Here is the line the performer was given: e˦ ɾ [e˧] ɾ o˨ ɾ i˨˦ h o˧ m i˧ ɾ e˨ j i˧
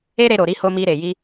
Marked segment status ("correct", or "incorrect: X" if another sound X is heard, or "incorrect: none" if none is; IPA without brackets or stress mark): correct